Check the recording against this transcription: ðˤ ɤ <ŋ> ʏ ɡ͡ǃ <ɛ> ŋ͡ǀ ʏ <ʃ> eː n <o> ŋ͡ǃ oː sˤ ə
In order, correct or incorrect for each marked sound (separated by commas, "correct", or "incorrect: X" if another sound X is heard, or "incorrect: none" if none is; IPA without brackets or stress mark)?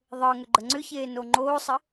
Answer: correct, incorrect: ə, incorrect: ç, correct